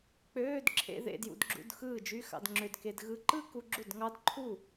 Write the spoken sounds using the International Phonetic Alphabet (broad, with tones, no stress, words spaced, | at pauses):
k͡pøː˧˥˧d ǁʰḛ˥˧ðḛ˥˧djṵ˧dɡ͡ǁṵ˧˥˧d xɯː˥˩d͡ʒy˧˥˧xɑ̰˧d ŋ͡ǁø˧d ke˧d ɣɯ˥˧ ǃɯ˥˧ku˧ ɡ͡ǁu˥˩dŋɑ˦˥d ǃʰu˥˩